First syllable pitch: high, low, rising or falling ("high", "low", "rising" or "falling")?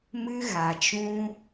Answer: high